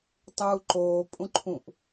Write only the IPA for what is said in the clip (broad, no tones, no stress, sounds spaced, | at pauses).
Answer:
tˤ uː ǃ oː pʼ ũ ǃʰ ũ ʔ